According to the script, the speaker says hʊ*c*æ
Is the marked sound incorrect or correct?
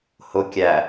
incorrect